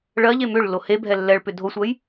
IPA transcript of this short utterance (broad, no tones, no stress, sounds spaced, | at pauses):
ɭ ɜ ʎ e m ʏ ɭ lː o h e bʱ ɛ lː ɛ ɭ p ʏ dʱ o sʷ ɜ j